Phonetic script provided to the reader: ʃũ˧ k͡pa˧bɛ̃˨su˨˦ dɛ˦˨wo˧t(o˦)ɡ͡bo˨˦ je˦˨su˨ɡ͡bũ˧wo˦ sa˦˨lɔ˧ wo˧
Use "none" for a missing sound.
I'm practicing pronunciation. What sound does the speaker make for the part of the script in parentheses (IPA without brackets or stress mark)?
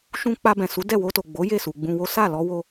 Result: o˨